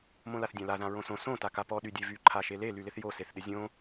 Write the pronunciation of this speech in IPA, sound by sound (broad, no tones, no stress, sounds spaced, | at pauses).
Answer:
m õ l a θ dʲ ã l a ð ã ɹ õ s õ s õ t a k a p ɔ ɗ y dʲ e v y ǃʰ a ʃ e l e l y l ɪ θ j o s e θ ɗ ɪ zʲ õ